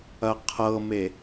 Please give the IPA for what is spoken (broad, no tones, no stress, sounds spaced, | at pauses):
ɐ qʰ ɤ m e